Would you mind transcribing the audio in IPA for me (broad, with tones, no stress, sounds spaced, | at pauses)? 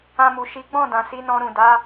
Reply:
ã˧ m u˨ ʃ i˨˦ ɡ͡b ɔ̃˦˨ d ã˨ s i˨˦ n ɔ̃˧ ɾ ũ˨ d a˨˦